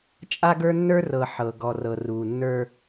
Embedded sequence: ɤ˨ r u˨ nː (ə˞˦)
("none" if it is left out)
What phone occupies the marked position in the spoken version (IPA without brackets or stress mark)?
ə˞˦